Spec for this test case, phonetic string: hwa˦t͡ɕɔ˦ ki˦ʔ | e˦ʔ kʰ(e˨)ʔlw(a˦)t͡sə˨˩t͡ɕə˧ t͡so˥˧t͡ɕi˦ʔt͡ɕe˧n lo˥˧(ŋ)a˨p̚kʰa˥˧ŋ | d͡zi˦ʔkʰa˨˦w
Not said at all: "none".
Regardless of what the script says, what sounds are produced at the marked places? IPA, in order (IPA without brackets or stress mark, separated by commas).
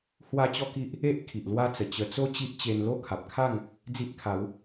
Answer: i˨, a˦, kʰ